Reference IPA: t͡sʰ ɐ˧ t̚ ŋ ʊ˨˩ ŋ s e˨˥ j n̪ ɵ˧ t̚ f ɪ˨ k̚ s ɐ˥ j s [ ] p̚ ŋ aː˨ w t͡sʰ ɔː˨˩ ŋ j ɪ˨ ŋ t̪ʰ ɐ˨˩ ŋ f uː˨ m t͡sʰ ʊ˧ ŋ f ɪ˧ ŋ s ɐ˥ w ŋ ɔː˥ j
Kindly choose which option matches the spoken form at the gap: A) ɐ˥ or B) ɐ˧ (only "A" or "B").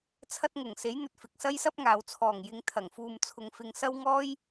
A